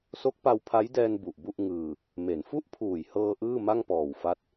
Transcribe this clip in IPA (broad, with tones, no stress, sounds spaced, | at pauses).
s o˦˥ k̚ p a˧ w pʰ a˦˥ j d ɛː˧ n b u˨˩ ʔ b u˥˩ ʔ ŋ ɯː˧ | m e˩˦ n f u˥˩ ʔ pʰ uː˨˩ j h ɤː˧ ʔ ɯː˥˩ m a˥˩ ŋ p ɔː˨˩ w f a˦˥ t̚